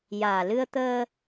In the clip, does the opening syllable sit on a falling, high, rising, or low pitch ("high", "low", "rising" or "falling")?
low